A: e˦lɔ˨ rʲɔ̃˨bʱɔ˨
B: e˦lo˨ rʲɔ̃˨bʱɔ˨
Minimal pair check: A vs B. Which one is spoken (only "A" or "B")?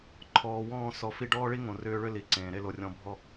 B